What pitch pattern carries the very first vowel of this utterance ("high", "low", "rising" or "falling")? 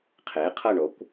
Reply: rising